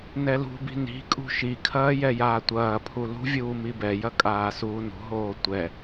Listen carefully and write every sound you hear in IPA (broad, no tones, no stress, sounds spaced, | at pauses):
n ɛ l ṳ b i̤ n i̤ kʼ ṳ ʃ i kʰ ɐː j ɛ j aː tʷ ɐː pʰ u l ṳ vʲ uː m i b ɛ j ɐ kʼ aː s uː n ṳ ɦ oː tʷ ɛ